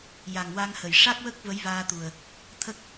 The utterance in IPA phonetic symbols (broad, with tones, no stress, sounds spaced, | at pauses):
j a˨˩ ŋ w a˧ ŋ h ə˨˩˨ j ʂ a˦˥ k̚ w ə˦˥ k̚ v ə˧˥ j v aː˧ t̪ u˨˩ ə̯ | t̪ʰ ə˦˥ k̚